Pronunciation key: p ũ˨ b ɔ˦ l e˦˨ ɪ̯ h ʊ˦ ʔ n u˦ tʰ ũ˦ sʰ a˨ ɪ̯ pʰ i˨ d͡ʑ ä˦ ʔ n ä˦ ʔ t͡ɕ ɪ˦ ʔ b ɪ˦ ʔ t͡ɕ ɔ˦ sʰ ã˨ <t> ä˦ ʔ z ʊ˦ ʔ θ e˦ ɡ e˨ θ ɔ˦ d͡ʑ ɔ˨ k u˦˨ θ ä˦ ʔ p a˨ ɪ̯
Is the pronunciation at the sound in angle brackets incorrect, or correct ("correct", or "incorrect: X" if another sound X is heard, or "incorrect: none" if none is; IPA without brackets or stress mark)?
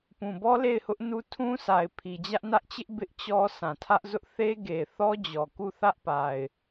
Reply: incorrect: tʰ